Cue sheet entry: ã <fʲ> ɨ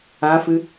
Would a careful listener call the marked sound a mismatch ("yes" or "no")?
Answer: yes